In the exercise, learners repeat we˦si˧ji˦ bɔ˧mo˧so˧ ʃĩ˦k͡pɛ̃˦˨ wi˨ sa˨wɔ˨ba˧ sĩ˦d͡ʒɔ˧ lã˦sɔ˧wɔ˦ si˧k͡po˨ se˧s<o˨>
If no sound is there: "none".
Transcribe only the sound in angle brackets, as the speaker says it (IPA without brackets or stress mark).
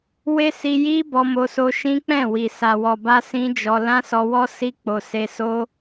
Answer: o˦